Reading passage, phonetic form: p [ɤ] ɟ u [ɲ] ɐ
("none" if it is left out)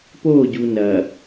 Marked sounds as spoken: o, n

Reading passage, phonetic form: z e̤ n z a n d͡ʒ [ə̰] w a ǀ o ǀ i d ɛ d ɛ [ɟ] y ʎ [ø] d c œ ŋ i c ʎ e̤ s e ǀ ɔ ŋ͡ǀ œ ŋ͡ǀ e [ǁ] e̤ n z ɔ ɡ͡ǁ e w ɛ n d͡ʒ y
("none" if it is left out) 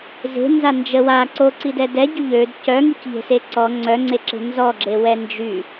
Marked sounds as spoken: ə, ɟ, ø, ǁ

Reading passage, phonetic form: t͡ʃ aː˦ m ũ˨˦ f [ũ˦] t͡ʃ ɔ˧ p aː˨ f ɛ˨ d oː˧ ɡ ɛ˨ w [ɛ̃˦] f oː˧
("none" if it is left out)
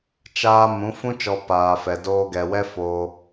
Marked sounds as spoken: ũ˦, ɛ˦

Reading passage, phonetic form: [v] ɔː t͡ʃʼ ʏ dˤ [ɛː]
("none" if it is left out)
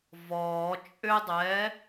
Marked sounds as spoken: v, ɛː

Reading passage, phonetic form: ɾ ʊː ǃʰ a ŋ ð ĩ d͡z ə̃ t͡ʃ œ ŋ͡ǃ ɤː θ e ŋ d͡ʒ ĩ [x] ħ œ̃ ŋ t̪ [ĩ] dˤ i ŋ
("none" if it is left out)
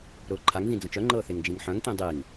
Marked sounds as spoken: ŋ, ĩ

